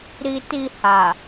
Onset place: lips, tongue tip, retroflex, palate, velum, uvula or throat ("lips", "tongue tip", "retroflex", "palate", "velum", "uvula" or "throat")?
tongue tip